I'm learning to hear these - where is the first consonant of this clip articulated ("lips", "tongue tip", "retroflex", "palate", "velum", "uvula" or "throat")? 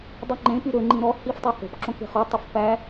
tongue tip